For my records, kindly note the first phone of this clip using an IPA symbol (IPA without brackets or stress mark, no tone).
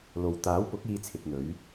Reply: l